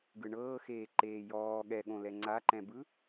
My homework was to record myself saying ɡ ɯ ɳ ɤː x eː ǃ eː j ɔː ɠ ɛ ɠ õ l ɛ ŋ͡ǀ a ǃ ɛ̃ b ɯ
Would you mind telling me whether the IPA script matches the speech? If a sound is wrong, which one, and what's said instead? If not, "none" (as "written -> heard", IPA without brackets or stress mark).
none